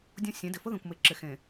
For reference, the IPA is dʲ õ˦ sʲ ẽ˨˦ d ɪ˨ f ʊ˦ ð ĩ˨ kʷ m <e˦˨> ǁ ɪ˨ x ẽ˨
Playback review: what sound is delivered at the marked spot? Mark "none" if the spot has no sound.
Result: e˨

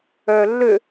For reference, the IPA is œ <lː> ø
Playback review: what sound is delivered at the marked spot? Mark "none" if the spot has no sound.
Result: lː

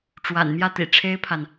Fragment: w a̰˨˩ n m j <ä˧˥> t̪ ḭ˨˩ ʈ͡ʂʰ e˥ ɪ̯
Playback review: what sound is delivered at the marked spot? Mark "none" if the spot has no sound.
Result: ä˥˩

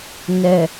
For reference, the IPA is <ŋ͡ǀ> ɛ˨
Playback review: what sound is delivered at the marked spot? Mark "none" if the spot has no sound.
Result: n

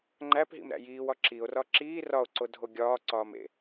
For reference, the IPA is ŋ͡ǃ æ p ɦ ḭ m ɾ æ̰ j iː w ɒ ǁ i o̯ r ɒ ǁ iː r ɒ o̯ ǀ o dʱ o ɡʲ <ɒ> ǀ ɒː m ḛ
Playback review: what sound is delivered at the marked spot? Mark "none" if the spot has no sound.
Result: ɒː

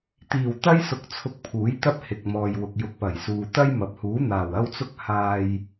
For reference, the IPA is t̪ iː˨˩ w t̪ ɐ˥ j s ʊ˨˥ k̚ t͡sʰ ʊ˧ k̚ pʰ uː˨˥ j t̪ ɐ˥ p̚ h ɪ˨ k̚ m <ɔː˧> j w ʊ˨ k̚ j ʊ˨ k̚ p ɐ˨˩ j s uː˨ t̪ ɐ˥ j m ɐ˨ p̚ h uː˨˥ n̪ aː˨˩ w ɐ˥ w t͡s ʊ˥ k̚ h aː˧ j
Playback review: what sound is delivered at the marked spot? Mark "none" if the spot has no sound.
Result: ɔː˨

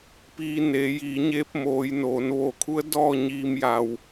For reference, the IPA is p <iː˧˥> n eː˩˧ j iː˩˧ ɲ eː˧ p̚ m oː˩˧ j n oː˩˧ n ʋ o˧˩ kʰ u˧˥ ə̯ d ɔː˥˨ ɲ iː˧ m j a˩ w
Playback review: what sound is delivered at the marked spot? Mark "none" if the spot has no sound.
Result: iː˧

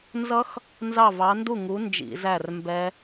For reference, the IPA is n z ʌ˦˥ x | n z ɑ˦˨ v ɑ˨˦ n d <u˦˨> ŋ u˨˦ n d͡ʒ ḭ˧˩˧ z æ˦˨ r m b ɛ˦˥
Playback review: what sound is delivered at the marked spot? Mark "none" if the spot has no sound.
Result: u˦˨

